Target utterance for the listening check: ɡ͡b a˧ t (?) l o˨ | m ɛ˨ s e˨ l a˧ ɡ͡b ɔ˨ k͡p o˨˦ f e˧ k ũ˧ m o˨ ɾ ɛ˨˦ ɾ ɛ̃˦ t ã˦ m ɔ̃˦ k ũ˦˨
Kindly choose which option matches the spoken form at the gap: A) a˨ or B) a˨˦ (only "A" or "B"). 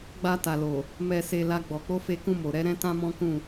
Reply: A